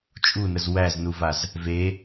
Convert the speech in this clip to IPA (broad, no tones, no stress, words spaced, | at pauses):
t͡ʃʼunəz wæznuvaz | ve